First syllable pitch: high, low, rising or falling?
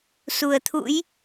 low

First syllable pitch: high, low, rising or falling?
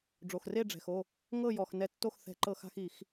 low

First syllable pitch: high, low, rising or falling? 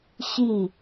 falling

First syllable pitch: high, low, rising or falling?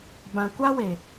low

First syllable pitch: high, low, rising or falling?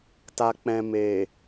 low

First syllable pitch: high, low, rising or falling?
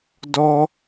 high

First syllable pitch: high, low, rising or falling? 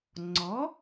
rising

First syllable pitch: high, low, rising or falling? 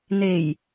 low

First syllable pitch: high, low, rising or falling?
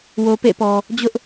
low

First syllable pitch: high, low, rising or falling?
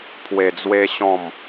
low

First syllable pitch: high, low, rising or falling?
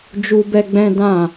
high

